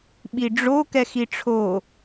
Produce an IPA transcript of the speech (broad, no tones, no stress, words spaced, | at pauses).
ɓiɖ͡ʐo kɛxiʈ͡ʂʰo